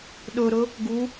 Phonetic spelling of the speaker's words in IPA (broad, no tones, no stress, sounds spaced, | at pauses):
ɗ ɵ ɾ ɵ | ɡ u